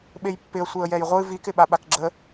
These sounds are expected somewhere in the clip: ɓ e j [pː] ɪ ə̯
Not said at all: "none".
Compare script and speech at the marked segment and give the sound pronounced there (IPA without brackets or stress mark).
pː